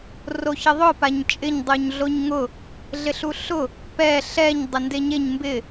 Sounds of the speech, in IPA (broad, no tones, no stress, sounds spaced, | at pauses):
r o ç ɪ ðˤ ʊ p a ɲ t͡ʃʼ ɪ ɲ dˤ u ɲ ɮ o ɲ ŋ ʊ | ɮ ɪ ɬ u ɬ ʊ | p ɛ ɬ ɛ ɲ dˤ ɪ n d e ɲ e ɲ m b ɪ